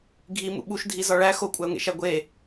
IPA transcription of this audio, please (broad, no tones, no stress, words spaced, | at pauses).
ɡʱimṵ ɓuʃdʱizɒ ɭæ xokʷʼæʊ̯ŋḛʃæ ɡʷe